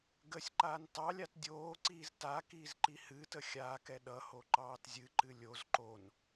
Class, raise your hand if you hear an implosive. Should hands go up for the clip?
yes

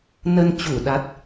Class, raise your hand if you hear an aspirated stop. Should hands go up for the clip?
no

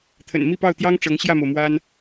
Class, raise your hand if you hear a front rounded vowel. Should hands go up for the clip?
no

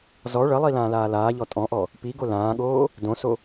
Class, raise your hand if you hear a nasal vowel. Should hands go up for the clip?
yes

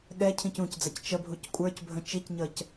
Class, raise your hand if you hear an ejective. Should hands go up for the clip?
yes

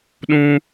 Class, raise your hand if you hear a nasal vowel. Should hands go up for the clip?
yes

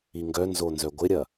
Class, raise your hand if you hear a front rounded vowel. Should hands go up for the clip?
yes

